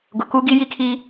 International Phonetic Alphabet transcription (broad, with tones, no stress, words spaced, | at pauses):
ɡʊ˨kuː˦ɡi˦ ji˦kʰi˦